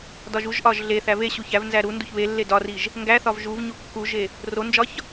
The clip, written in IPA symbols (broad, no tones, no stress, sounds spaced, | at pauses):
d ɒ ʒ u ʒ ʔ ɒ ʒ ɮ e θ æ v e ɕ u ç æ v n z æ ɾ u n d u ç β e lː e d ɒ r i ʒ | ŋ ɡ æ θ ɒ v ʒ u v ɲ u kː u ʒ e | r o n d͡ʒ ɒ ç